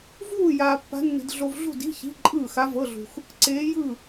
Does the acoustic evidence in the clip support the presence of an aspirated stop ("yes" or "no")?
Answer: no